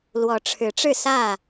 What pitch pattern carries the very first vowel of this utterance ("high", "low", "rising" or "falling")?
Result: rising